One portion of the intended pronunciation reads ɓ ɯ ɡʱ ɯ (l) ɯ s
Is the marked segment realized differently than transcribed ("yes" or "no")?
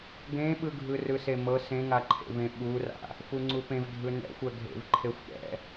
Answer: yes